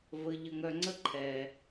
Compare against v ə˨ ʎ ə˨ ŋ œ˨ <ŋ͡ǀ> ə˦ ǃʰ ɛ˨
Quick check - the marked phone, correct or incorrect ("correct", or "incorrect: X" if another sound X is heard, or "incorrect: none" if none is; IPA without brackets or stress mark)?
correct